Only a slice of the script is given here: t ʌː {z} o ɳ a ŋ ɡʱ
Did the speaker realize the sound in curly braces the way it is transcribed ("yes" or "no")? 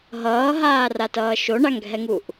no